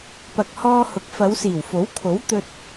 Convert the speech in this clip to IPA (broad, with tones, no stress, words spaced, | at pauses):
pɐ˨k̚hɔː˧ hʊ˨˥k̚fɐ˨˧wsiː˨˩w fo˨˥wkʰo˨˥w t̪ɵ˧t̚